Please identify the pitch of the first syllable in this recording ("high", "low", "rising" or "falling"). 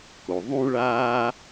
low